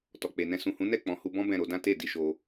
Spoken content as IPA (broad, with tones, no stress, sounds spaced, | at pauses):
t ɔ˨ k͡p e˨ n ɛ̃˧ s ũ˨ h ũ˨˦ n ɛ˦˨ k͡p ɔ̃˨ h u˧ b ɔ̃˦ b ɛ̃˦˨ ɾ o˧ d ã˦ t e˦˨ d i˧ ʃ o˧